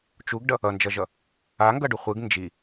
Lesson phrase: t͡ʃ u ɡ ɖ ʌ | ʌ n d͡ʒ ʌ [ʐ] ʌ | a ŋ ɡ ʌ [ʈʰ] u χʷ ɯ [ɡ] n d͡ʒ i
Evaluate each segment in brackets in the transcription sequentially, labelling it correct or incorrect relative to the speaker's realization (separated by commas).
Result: incorrect, incorrect, correct